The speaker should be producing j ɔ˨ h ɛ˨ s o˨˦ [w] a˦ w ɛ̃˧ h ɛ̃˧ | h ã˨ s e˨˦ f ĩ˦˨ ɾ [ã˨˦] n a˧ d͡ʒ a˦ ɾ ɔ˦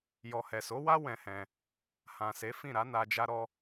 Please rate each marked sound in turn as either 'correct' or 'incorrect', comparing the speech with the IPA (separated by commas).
correct, incorrect